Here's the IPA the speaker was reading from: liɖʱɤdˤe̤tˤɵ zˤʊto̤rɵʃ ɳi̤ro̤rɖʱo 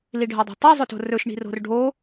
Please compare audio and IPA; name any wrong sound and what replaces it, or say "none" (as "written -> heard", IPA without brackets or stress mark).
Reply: none